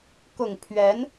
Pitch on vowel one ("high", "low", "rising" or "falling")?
low